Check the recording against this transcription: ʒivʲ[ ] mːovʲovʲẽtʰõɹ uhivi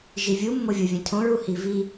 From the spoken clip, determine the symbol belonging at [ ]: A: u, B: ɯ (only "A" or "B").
A